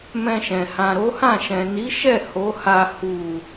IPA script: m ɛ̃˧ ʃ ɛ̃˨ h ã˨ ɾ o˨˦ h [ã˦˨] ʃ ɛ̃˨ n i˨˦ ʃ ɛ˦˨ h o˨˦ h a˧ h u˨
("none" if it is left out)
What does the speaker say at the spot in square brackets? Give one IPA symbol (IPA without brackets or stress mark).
ã˦˨